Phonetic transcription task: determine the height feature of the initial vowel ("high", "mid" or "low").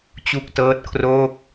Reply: high